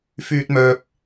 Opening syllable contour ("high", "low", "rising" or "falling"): high